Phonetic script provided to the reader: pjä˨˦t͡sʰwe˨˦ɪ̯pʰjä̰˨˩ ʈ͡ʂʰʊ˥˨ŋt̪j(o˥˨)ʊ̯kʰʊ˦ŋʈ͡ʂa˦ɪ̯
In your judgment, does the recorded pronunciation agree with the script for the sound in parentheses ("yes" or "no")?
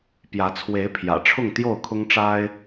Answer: yes